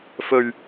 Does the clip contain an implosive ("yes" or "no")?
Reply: no